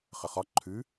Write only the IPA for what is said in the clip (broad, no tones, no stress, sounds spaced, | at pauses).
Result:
χ ə χ ɒ ǃʰ ʉ